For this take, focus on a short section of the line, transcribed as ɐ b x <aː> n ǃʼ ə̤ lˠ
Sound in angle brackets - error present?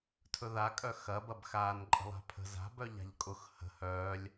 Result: no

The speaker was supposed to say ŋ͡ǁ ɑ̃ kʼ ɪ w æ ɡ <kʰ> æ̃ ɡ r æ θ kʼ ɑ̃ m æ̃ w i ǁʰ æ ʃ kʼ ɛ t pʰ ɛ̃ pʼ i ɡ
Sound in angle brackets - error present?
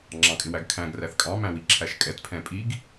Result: no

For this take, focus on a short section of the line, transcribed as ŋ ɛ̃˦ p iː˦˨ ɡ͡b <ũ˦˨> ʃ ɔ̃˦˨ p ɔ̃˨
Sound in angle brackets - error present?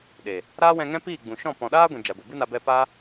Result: yes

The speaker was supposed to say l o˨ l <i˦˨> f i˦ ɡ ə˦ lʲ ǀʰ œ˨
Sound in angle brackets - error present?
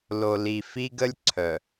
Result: yes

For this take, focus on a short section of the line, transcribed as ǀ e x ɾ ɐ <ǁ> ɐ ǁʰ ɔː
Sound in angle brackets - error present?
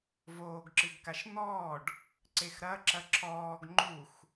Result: no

